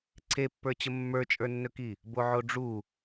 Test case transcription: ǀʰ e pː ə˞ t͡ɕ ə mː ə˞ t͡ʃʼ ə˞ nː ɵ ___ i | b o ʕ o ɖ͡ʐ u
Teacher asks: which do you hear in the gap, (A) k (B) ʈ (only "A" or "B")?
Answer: A